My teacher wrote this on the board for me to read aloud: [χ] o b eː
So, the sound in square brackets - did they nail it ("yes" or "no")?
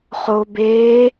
yes